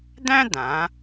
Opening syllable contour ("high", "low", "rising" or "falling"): high